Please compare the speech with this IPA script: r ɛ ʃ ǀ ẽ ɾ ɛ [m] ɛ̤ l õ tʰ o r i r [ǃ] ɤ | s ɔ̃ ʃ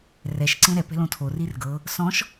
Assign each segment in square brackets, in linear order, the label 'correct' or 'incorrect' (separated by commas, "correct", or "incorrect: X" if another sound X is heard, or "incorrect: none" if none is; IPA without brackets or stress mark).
incorrect: p, incorrect: ɡ